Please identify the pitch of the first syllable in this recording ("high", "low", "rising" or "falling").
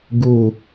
falling